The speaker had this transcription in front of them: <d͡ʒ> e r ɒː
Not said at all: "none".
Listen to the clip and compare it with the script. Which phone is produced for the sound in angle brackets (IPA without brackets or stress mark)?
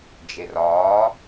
d͡ʒ